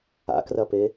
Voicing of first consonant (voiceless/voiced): voiceless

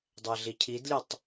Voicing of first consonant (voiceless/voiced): voiced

